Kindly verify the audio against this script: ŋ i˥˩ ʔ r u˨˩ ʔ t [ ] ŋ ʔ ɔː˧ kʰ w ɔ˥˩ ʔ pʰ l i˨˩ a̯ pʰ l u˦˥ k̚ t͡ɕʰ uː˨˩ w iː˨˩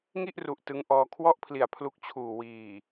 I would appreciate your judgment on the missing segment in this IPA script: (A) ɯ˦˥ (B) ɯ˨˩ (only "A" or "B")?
A